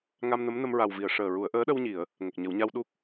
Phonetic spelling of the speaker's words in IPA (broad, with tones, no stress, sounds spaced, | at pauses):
ŋ a˧ m n ə˧˥ m n ə˧ m ɹ a˨˩ w v i˨˩˨ ə̯ ʂ əː˨˩ ɹ u˨˩˦ ə̯ ʔ əː˧˥ ɗ ə˧ w ɲ i˨˩˨ ə̯ | ŋ ə˨˩ k̚ ɲ ə˨˩˦ w ɲ a˧ w ɗ u˦˥ k̚